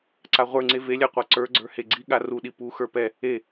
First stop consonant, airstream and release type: click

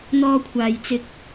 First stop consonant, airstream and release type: aspirated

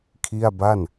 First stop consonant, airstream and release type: aspirated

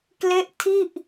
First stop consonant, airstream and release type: plain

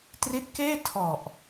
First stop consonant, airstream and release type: plain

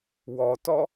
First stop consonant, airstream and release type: plain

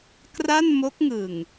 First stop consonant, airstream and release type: plain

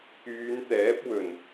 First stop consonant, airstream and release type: plain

